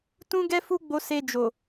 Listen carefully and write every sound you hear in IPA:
t ũ˦ ɡ ɛ˦ f u˦ ɡ͡b o˧ s e˧ d͡ʒ o˨

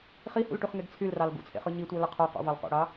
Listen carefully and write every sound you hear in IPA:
χ i h ṵ l ʈ y χ ŋ e ɡ t͡sʰ y l r ɑ l ɡ ṵ t͡sʰ ḛ χ ɯ ɲ i tʷ æ l ɯ qʰ o q ṵ v ɑ l qʷ ḛ ɽ ɑ

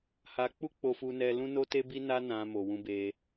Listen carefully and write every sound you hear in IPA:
h a˧ k͡p u˦ k͡p o˦ f u˦ n ɛ˦ l ũ˦ n o˦ t e˦ b i˦ n a˦ n ã˧ m o˨ w ũ˧ b e˧

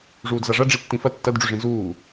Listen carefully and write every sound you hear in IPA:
ʐ uː d z a ʐ ɐ ɖ͡ʐ i tː ĩ f ɐ tː ɐ d ɖ͡ʐ ʉ ʐ ĩ z uː

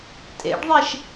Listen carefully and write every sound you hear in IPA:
tʼ ḛ ɖ ðˤ e ʃ

